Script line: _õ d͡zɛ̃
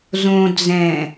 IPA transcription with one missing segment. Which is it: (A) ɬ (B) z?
B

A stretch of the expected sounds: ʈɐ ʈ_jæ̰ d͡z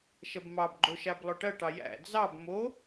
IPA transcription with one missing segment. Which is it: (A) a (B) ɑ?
B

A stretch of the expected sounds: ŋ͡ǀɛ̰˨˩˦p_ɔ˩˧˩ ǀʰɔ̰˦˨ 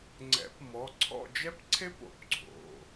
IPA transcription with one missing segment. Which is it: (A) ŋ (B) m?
B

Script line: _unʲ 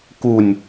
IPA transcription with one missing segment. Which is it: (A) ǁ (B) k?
B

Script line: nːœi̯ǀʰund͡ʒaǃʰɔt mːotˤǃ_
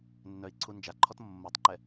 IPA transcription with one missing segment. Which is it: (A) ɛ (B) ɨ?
A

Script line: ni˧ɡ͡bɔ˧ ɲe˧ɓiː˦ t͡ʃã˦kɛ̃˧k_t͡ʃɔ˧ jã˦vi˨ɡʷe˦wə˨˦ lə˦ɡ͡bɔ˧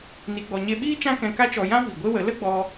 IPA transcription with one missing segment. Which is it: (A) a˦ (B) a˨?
A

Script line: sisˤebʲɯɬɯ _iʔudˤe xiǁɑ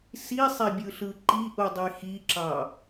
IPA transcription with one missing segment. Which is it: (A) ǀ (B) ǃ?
B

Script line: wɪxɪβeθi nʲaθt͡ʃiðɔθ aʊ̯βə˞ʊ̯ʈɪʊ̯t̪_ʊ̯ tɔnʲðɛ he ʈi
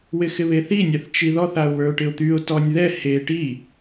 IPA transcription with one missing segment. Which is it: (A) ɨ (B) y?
B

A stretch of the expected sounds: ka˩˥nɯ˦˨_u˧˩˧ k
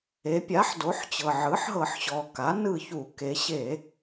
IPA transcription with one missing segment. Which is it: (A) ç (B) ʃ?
A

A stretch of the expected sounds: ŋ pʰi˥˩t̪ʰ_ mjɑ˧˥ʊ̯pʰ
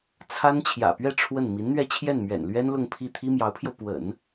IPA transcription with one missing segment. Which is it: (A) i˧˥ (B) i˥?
B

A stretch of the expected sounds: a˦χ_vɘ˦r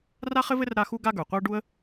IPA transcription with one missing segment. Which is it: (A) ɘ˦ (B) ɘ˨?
A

